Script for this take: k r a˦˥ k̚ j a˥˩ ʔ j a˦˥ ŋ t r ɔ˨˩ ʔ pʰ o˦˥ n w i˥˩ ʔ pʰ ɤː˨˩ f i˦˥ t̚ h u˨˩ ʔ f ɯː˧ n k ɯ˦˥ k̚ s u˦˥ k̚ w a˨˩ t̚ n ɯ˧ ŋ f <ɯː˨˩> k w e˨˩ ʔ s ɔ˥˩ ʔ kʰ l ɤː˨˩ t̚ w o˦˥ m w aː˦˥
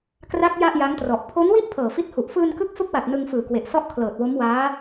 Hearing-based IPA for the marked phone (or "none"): ɯː˨˩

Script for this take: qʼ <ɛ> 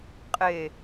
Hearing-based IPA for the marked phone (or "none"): e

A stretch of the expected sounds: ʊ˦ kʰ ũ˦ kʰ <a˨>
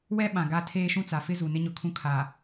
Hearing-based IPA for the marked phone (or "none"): a˨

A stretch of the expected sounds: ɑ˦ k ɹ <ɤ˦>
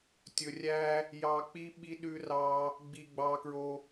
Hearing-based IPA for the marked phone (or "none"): o˦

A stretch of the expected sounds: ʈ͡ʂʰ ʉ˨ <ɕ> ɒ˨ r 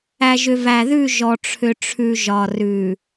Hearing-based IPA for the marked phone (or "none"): ʒ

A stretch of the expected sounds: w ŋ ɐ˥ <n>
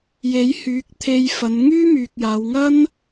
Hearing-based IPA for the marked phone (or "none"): n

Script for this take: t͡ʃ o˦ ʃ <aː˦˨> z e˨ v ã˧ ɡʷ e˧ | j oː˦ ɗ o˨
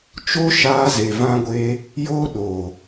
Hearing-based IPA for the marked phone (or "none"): aː˧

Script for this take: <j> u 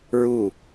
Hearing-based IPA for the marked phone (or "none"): ɹ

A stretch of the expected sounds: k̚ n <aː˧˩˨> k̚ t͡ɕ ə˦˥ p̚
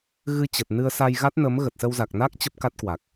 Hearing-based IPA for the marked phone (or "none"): aː˦˥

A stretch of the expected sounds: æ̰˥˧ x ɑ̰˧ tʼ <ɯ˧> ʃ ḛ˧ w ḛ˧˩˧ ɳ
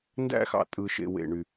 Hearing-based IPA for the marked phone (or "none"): ɯ˧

